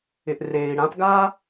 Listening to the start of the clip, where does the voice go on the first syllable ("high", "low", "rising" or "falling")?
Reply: low